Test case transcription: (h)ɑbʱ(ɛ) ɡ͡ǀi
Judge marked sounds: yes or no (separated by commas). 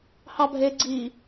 yes, no